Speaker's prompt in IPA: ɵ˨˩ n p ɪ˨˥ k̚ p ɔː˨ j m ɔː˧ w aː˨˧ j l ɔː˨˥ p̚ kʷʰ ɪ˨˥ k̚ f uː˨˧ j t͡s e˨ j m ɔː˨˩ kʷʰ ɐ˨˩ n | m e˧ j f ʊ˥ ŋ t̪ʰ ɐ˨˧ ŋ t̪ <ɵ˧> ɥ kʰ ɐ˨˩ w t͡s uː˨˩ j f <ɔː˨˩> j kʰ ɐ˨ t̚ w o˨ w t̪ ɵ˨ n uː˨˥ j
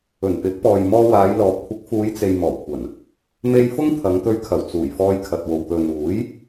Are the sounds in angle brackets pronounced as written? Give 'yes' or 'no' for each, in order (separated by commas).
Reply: yes, no